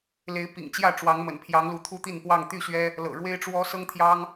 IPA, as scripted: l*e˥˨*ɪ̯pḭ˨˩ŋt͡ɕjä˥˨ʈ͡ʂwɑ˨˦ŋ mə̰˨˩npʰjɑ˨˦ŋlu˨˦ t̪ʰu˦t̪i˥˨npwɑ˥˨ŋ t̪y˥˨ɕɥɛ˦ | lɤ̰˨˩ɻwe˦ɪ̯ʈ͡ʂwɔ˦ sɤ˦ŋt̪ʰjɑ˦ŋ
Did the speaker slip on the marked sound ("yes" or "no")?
yes